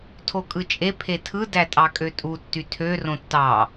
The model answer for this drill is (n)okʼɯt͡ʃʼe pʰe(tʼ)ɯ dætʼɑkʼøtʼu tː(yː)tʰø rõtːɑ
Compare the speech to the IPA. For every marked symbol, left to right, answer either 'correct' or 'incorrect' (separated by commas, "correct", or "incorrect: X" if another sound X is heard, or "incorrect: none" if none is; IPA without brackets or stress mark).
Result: incorrect: tʰ, incorrect: tʰ, incorrect: y